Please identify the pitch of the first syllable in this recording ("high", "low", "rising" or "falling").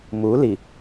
rising